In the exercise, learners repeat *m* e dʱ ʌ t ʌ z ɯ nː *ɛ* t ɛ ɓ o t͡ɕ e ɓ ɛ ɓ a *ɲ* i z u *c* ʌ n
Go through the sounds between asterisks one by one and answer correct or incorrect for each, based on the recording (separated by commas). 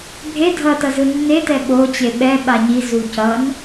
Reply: incorrect, incorrect, correct, correct